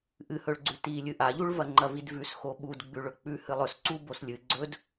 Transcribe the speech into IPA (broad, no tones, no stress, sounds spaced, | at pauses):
ʔ ɨ h ɵ ɭ ɡ͡ǀ ʉ t i lʲ ɨ ʔ a ʎ u ɭ v ɐ ŋ͡ǃ ɐ v i d v ʉ s x o ɓ u d ɡ͡b ʉ ɭ ɵ k͡p ʉ h ɨ lˠ ɵ s ǀ u b o s lʲ ɨ ɡ͡ǀ ɵ d